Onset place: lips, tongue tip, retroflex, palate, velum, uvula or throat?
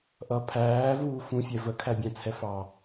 throat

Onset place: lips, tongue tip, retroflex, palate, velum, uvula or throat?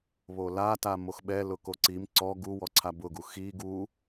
lips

